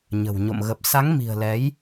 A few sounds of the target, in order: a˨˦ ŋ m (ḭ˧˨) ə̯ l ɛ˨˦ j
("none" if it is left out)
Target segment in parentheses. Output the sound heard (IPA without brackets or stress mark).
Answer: i̤˨˩